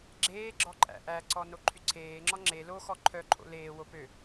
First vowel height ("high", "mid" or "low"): mid